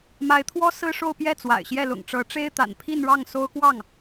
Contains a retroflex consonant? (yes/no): yes